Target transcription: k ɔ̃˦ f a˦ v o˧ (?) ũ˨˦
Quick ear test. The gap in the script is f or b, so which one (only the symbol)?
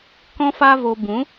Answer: b